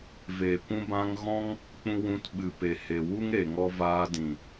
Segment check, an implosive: present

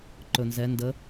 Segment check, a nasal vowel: absent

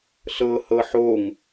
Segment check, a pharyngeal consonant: present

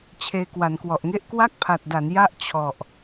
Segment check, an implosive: absent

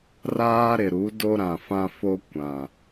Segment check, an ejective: absent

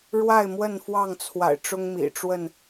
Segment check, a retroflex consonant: present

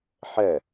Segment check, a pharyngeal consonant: present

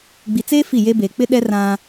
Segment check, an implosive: present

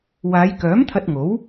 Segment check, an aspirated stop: present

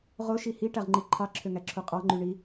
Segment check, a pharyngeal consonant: absent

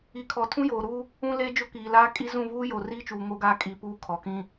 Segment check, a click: absent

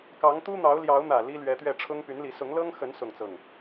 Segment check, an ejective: absent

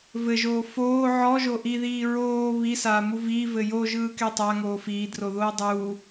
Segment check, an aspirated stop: absent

